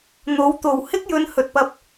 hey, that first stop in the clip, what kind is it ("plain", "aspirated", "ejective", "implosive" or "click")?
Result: plain